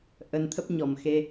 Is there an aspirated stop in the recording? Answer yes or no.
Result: yes